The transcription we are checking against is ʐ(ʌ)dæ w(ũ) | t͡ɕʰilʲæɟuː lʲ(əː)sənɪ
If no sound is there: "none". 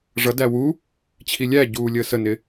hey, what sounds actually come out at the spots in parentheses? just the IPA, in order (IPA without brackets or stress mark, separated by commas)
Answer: ʌ, u, əː